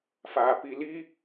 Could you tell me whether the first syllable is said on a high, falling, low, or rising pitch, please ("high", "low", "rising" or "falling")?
low